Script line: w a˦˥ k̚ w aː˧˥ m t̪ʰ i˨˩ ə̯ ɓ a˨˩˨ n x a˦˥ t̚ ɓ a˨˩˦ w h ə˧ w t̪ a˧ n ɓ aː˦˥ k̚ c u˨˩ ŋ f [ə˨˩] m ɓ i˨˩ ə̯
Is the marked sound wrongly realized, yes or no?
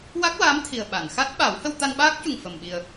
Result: no